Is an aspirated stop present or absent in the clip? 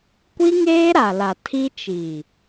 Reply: present